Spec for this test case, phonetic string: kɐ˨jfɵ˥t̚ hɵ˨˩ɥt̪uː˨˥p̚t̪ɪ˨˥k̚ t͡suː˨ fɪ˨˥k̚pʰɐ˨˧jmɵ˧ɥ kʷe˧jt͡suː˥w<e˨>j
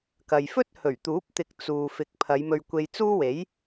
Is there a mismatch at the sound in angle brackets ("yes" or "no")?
yes